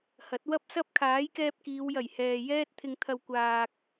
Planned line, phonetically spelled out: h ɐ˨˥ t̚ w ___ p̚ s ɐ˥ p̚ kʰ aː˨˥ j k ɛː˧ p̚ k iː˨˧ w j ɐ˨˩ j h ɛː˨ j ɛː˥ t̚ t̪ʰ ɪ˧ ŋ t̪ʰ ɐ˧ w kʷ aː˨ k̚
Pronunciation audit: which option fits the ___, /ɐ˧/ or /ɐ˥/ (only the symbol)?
ɐ˥